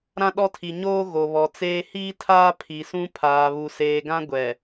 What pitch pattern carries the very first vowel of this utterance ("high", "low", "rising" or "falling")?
high